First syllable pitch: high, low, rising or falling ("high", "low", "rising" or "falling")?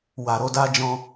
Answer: low